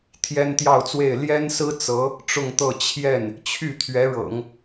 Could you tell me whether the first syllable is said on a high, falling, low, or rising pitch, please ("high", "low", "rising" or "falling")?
high